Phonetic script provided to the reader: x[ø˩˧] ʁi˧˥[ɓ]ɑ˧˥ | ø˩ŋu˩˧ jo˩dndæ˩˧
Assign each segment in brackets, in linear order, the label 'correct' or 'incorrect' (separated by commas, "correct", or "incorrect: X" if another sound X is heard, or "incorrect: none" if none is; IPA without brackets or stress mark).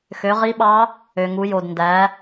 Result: correct, correct